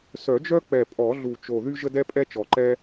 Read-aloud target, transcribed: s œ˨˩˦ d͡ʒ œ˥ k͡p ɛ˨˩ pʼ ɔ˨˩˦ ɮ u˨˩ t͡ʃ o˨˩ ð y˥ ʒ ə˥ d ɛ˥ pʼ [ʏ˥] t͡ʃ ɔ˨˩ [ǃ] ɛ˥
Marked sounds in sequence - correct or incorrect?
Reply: incorrect: ɛ˥, correct

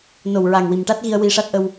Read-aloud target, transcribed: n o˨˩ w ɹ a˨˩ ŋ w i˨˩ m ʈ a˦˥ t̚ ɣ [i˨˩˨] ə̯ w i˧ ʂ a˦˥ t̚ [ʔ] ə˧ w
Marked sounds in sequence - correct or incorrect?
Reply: incorrect: i˧, correct

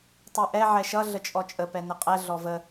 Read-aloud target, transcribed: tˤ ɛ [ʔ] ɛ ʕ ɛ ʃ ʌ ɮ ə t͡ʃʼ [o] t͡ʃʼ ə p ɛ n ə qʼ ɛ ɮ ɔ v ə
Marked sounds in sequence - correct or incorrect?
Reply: correct, incorrect: ɔ

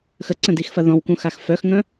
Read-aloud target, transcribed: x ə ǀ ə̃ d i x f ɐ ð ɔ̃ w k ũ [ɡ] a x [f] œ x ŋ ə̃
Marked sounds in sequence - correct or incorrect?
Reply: incorrect: x, correct

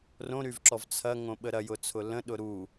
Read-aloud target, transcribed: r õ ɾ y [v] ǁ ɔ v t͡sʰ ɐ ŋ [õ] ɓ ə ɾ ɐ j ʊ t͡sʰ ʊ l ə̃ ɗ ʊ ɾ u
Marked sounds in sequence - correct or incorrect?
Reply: correct, correct

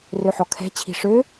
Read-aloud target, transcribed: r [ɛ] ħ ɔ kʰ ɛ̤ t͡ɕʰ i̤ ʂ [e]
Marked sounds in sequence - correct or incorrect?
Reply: incorrect: ø, incorrect: ø

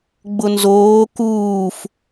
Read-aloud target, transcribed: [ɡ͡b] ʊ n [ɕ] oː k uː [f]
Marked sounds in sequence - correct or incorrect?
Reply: correct, incorrect: z, correct

